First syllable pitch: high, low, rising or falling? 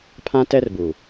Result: high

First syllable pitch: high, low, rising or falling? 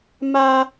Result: high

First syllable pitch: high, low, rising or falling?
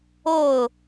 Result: falling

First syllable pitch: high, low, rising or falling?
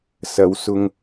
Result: rising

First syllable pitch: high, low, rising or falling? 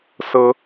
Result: rising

